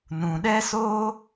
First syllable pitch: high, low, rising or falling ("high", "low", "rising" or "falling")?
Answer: low